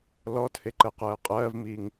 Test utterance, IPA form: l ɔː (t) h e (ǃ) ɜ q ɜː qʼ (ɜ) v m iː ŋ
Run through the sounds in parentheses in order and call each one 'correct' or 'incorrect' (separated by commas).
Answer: correct, correct, incorrect